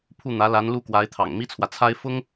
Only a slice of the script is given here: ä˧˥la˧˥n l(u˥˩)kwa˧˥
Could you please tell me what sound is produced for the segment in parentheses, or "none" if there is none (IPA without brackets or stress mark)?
u˥˩